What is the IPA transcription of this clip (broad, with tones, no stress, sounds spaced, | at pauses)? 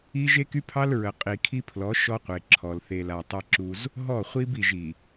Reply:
i˦ ʒ e˦ k y˦ pʰ ɑ˦ l ɹ ə˨ qʼ i˨ kʰ i˦ pʰ l ɔ˨˦ ʃ ɔ˦ qʷ e˨ ǁʰ ɔ˨ l θ e˨ l a˨ tˤ e˦ ǁ u˦ z | ɦ ɔ˦˨ χʷ i˦ b i˨ ʒ i˨